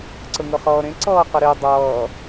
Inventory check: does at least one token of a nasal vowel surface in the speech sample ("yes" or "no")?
yes